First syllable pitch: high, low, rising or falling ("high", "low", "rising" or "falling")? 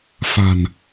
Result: low